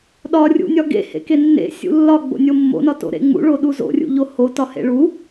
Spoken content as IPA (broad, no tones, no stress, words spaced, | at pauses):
ɗɒrʲṵnʲɒ ɡḛ hḛkenːḛ sʲṵlːɒ ɡ͡bo̰nʲomːo̰nɒ to̰ɾḛŋ͡mṵɭo ɗuzo̰rʲṵʎo ho tɒhḛɭu